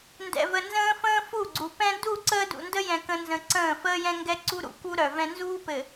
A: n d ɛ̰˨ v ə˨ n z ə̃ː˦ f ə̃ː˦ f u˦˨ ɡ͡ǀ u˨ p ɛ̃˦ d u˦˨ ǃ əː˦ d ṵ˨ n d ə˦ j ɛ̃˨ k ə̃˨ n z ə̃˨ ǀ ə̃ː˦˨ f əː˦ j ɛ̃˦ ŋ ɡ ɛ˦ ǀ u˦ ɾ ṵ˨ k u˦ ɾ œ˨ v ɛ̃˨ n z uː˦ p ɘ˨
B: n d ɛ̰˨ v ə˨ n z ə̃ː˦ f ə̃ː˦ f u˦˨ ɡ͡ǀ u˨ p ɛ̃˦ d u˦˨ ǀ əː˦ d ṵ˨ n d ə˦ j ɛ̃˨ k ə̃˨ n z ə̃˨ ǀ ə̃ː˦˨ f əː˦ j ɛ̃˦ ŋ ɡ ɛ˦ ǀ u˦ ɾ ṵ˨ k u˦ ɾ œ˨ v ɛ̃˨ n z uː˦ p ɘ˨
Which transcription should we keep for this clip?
B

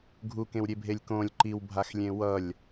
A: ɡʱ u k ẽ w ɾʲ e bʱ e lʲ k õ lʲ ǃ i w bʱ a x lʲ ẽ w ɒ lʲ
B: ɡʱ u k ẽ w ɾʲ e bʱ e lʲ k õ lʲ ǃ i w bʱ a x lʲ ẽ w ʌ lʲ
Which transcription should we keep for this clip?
B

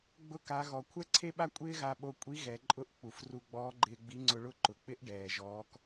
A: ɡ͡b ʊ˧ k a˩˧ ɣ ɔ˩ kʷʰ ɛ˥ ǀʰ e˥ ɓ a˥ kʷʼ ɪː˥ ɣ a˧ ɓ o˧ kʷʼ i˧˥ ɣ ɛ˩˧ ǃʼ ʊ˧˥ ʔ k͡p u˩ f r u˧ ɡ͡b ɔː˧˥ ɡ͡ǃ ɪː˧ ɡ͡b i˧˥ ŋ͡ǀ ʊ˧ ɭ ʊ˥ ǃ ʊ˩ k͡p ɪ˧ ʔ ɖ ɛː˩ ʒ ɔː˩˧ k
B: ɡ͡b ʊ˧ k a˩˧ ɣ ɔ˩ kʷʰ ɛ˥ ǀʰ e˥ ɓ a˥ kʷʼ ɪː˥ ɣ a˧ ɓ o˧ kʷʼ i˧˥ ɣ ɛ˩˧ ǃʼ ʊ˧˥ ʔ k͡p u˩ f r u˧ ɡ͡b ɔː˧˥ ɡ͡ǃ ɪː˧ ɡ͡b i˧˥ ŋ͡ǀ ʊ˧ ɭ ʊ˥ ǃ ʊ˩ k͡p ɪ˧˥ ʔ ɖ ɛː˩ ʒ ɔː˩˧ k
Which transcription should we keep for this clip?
B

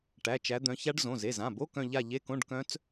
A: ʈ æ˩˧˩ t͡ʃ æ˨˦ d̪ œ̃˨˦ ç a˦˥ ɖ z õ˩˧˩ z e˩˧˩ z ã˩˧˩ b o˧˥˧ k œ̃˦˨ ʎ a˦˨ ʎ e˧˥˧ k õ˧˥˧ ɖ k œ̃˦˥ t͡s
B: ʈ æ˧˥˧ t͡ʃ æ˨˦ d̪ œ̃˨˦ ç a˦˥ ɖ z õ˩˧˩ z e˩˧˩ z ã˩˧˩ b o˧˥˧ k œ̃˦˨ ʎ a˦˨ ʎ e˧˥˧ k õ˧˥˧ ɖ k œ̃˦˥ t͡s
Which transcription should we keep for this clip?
A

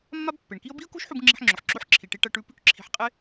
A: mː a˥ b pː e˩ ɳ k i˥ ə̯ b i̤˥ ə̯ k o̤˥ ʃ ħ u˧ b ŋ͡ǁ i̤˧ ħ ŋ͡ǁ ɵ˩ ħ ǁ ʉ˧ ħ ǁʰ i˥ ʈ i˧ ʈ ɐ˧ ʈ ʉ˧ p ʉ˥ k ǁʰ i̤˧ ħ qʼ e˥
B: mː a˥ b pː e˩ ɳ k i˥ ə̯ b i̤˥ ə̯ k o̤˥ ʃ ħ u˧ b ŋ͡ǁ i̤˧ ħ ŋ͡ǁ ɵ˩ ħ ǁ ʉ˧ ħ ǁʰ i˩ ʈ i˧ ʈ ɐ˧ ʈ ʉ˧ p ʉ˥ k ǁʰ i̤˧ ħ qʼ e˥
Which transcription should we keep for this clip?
B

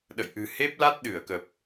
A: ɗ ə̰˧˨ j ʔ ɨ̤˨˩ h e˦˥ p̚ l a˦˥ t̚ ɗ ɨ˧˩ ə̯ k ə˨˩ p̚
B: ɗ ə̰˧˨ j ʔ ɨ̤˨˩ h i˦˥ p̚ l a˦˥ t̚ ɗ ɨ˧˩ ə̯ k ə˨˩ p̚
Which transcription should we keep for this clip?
A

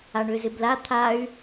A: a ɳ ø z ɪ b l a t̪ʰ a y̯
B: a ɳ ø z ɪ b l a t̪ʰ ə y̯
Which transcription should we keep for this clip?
A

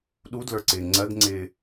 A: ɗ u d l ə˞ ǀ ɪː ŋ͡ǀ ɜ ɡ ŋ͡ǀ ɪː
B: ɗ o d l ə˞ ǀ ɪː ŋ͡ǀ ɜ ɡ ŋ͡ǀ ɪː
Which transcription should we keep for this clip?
A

